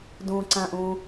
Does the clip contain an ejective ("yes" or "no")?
no